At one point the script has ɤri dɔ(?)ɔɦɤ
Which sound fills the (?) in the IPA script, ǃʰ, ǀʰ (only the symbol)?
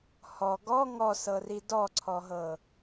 ǀʰ